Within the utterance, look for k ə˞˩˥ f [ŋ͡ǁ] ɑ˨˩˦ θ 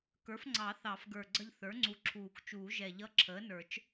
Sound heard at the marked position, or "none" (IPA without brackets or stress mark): ŋ͡ǀ